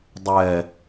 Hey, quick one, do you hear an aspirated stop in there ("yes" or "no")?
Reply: no